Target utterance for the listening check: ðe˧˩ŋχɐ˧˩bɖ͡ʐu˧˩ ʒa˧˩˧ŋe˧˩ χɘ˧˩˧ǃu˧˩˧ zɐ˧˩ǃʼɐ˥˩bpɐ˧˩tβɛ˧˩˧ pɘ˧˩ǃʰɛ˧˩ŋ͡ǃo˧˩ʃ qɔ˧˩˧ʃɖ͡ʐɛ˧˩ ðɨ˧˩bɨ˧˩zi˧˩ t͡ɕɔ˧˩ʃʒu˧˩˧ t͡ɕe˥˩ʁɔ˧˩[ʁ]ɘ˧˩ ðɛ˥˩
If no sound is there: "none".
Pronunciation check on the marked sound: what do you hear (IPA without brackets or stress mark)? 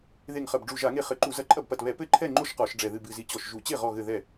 ɣ